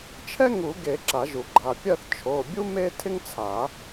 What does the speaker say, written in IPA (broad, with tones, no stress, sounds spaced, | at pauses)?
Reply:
t͡ʃʰ ɛ˥ ŋ u˨˩˦ ɡ e˨˩˦ ǁ a˨˩˦ ʒ u˨˩˦ ɡ͡ǃ a˩˧˩ pʲ ɜ˥˧ θ t͡ʃʰ o˩˧˩ bʲ u˥ m e˥ tʰ ɪ˥ ŋ t͡sʰ a˨˩˦